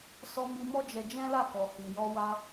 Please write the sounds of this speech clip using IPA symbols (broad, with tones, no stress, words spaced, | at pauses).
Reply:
sɔ˧mi˧ mɔ˦d͡ʒɛ˧d͡ʒɛ̃˦la˦˨ kɔ˨hi˨jɔ˧ wa˧